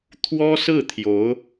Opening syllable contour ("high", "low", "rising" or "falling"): high